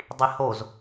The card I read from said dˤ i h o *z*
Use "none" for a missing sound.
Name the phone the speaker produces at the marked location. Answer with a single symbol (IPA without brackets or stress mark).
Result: z